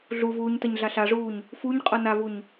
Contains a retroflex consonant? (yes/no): yes